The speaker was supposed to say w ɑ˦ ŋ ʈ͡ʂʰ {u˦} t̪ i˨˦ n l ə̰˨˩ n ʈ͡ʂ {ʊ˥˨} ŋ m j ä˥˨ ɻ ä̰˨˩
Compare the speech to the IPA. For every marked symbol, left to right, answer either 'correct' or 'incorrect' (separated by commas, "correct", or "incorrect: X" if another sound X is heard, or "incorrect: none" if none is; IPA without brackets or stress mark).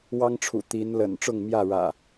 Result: incorrect: ṵ˨˩, correct